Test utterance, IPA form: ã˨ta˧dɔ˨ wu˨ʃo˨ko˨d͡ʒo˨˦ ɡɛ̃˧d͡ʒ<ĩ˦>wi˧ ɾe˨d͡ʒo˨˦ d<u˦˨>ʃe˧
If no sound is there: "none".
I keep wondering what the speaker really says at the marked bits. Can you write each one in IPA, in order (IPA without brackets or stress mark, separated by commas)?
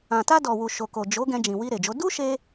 ĩ˨, u˦